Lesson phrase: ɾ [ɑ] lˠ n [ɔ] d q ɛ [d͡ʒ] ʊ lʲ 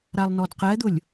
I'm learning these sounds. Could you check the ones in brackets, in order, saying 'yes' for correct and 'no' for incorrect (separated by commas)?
no, yes, no